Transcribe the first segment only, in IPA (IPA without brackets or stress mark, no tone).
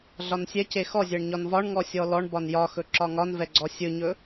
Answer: ɮ